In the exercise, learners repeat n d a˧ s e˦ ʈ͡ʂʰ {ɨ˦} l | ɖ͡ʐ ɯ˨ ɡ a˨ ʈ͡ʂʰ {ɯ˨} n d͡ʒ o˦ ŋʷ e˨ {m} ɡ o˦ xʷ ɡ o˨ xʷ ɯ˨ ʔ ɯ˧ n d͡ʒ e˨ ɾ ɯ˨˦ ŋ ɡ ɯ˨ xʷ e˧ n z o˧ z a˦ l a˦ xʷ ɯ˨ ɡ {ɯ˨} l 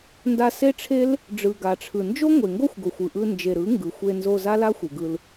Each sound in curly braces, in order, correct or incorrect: incorrect: e˦, correct, incorrect: ŋ, incorrect: ɯ˧

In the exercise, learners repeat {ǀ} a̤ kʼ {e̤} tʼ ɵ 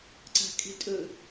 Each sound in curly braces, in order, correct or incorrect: correct, correct

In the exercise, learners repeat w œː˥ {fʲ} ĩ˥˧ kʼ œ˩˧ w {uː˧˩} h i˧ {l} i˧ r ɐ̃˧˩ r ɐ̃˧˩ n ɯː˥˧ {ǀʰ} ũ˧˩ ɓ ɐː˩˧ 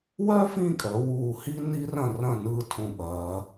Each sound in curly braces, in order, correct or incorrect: incorrect: f, correct, incorrect: n, incorrect: tʰ

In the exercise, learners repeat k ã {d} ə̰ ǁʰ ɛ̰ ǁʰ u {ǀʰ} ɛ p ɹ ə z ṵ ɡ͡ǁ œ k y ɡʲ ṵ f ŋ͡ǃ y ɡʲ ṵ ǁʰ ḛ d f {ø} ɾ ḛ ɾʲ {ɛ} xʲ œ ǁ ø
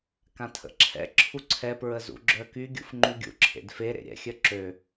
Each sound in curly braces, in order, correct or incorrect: incorrect: tʰ, correct, incorrect: e, incorrect: ɛ̰

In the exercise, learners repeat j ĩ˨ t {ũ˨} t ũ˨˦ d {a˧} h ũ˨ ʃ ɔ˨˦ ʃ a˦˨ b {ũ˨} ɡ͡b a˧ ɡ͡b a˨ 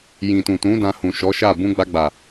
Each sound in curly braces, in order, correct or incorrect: correct, incorrect: ã˧, incorrect: ũ˧

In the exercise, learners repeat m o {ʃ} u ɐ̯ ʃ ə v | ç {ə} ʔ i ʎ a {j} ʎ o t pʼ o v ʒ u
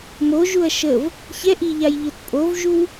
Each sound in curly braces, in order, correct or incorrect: incorrect: ʒ, incorrect: ɛ, correct

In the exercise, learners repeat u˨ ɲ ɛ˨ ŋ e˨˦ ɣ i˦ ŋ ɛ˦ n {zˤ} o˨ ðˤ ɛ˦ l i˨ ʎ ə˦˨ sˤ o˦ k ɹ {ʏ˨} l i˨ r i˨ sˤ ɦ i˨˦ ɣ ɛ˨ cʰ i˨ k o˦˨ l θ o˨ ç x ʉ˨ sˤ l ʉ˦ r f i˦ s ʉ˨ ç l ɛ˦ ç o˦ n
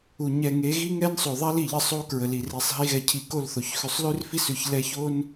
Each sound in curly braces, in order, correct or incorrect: incorrect: sˤ, incorrect: ə˨

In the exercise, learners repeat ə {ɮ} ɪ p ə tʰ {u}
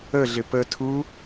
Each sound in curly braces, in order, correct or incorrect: correct, correct

